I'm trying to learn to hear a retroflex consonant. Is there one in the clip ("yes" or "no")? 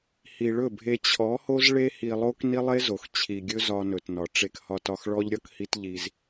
yes